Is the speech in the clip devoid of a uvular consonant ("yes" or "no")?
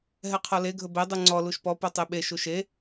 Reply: no